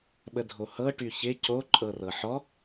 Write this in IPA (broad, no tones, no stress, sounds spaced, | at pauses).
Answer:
ɓ ə dʱ o h ɤ ʈ y ç ɪ c o ǃʼ ɤ r ɤ ħ ɔ